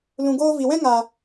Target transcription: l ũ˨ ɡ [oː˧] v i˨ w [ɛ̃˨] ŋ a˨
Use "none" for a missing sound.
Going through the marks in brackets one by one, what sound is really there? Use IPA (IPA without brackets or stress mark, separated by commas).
oː˧, ɛ̃˦